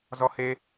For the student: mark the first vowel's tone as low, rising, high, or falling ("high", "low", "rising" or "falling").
high